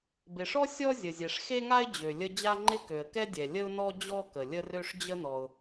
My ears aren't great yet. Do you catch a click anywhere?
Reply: yes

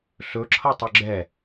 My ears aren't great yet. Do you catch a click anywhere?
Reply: yes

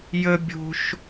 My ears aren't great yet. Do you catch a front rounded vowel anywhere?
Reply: no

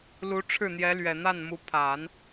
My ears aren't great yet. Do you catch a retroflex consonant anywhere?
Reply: yes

